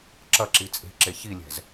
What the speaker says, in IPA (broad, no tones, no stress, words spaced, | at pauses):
ǁɐǁi t͡sʼe̤ǁe çilʲɛ̤z